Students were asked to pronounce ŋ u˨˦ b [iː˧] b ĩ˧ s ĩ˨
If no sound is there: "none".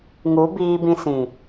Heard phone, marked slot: iː˧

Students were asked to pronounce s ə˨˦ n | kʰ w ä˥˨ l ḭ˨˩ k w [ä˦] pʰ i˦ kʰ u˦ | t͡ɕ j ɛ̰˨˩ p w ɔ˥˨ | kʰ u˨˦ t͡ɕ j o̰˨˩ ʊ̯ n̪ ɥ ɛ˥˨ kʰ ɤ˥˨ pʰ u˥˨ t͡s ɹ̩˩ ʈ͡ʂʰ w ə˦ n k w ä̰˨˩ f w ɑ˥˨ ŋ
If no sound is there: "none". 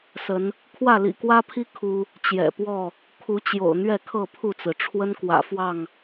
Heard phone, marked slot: ä˦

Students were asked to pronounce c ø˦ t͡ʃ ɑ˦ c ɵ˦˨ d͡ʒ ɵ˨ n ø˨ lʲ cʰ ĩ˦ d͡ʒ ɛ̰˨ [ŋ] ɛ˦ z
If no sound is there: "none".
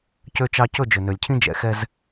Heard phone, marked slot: x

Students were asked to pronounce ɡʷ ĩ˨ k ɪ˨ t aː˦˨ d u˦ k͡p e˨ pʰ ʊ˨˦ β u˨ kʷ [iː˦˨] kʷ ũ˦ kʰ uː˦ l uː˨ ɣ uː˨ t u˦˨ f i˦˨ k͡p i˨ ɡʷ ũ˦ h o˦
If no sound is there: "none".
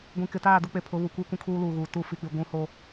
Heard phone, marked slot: iː˦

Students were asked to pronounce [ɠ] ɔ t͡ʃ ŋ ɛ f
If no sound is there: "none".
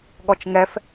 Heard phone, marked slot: ɠ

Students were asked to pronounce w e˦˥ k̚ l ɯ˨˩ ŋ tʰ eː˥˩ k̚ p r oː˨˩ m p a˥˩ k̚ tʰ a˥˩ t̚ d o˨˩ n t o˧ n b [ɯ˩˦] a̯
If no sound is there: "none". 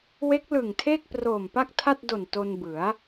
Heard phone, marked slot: ɯ˩˦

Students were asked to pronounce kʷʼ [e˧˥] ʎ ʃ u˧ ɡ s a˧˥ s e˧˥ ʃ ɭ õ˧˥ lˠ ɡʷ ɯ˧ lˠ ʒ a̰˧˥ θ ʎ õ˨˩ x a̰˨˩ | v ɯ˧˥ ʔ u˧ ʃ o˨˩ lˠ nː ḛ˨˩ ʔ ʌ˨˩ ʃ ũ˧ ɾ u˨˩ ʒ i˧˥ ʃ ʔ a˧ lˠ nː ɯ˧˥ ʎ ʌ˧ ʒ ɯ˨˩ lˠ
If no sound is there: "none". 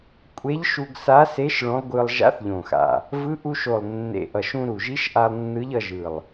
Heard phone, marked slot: e˧˥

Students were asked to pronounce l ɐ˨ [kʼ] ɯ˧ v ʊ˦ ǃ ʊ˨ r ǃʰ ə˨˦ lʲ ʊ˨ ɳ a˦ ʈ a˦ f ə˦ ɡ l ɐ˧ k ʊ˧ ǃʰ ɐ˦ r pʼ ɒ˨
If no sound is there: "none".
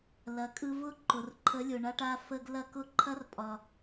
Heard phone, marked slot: kʼ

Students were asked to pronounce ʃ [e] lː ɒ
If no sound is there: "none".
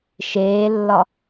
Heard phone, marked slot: eː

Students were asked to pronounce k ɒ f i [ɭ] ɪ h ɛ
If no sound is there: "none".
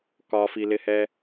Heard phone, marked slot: l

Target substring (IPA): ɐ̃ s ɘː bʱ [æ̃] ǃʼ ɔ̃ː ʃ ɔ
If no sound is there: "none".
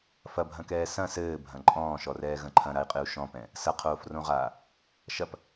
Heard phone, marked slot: ɐ̃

